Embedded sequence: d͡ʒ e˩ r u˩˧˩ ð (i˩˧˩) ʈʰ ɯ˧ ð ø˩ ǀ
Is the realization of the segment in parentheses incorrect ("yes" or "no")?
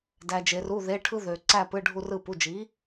yes